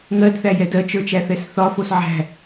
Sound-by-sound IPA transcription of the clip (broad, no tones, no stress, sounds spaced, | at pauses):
ŋ ɜ d θ æ j ɛ d ɜ t͡ʃ ə˞ t͡ʃ æ θ ɛ s θ ɒ f o s ʕ æ̤